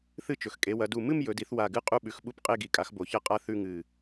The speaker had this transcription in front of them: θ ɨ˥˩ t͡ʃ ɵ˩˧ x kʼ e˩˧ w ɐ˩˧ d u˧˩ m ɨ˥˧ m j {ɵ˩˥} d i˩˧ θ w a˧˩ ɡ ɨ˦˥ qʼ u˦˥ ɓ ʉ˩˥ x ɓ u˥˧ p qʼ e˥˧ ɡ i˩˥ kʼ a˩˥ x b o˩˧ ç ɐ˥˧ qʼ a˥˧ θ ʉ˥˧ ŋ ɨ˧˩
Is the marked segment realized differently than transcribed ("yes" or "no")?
yes